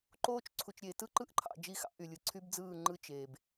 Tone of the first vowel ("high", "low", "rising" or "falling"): high